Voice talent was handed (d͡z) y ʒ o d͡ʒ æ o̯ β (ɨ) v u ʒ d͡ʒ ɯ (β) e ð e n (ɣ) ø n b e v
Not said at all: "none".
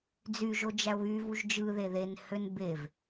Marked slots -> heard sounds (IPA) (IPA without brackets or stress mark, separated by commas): d͡z, y, ð, h